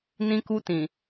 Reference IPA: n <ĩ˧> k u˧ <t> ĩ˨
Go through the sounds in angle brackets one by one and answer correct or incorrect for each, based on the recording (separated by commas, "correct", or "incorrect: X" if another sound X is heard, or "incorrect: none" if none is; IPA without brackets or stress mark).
correct, correct